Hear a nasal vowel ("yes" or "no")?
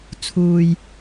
no